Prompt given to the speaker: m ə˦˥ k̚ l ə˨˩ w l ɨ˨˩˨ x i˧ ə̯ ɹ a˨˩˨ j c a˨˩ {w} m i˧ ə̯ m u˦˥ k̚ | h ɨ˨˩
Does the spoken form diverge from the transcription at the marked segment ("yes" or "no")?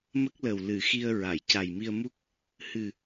yes